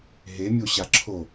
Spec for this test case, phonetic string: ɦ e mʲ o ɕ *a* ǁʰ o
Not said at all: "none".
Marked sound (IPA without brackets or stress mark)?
a